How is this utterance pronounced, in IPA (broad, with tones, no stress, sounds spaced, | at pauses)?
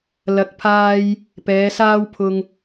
l ɐ˨˥ k̚ pʰ aː˧ j | p ɛː˨˧ s aː˥ w pʰ ʊ˧ ŋ